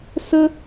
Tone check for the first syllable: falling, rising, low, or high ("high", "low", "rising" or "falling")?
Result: high